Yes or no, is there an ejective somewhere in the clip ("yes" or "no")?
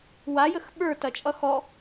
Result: yes